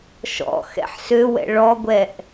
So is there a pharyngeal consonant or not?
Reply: yes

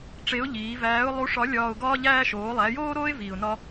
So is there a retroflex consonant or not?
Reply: yes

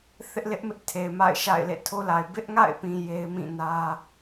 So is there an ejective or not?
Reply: no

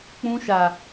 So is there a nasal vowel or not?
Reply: yes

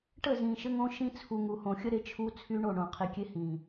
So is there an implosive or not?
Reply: no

